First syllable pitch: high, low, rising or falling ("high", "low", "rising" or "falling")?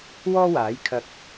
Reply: high